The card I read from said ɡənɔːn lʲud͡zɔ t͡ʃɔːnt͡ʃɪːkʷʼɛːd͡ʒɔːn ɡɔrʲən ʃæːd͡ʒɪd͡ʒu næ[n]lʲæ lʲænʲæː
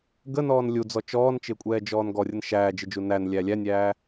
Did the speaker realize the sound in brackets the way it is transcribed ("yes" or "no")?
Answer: yes